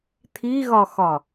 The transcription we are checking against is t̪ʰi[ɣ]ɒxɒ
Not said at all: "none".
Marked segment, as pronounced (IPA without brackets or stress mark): ɣ